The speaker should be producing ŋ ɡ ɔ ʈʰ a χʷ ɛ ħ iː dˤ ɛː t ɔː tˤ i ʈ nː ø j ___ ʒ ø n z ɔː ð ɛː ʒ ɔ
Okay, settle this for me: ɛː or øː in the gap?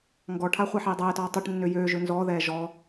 øː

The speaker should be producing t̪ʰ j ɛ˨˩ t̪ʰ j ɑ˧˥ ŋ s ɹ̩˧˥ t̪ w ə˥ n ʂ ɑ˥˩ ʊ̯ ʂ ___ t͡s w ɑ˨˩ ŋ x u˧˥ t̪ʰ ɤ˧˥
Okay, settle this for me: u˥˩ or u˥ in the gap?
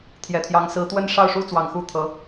u˥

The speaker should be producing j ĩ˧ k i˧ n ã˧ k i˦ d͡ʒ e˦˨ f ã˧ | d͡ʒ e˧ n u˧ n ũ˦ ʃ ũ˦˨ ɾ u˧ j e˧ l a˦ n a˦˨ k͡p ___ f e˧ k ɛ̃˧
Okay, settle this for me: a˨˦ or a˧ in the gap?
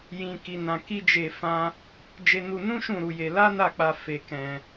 a˧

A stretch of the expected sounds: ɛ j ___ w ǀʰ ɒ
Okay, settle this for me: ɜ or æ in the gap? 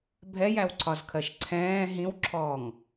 æ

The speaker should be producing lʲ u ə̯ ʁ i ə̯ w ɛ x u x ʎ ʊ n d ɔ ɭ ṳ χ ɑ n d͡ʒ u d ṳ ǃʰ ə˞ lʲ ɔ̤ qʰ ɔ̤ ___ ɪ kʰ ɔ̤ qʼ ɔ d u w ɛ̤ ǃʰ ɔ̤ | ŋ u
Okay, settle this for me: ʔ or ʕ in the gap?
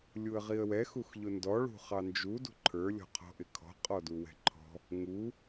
ʔ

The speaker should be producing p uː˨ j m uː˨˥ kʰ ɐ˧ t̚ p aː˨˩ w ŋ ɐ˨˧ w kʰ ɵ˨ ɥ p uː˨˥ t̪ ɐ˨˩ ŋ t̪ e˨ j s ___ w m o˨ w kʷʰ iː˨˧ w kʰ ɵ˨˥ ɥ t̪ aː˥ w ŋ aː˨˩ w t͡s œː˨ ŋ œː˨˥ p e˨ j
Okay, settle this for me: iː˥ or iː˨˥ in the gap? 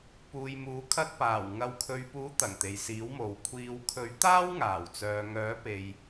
iː˨˥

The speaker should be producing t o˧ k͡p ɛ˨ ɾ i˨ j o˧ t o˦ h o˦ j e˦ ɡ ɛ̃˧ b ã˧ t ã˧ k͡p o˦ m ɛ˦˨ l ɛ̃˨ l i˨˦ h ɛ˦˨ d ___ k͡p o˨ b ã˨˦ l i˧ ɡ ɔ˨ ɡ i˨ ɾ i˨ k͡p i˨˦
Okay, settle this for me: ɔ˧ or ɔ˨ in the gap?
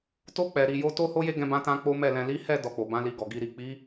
ɔ˨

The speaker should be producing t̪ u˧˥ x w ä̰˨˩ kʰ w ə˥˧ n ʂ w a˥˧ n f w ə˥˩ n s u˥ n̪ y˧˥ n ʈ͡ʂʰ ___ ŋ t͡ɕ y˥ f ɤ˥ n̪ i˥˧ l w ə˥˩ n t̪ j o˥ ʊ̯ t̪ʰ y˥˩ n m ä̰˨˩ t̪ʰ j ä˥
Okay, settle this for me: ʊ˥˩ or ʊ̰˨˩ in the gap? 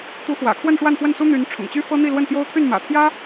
ʊ̰˨˩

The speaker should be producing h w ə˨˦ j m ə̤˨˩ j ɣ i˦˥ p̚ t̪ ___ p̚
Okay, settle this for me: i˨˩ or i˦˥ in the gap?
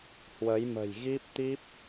i˦˥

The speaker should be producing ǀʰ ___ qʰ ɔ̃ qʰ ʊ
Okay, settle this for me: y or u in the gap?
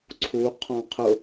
u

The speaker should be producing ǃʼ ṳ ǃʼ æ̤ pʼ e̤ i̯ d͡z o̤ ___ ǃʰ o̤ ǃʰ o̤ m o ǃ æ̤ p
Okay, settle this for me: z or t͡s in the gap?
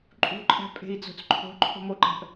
t͡s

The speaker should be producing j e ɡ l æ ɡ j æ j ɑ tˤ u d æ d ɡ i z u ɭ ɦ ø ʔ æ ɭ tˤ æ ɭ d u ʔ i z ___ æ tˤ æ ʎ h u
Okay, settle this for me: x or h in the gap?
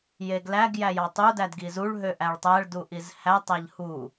h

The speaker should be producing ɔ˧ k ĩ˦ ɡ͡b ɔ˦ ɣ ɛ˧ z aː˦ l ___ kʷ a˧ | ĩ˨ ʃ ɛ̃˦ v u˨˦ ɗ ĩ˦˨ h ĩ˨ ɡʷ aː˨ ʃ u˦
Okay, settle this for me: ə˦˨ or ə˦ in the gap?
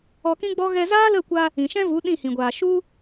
ə˦˨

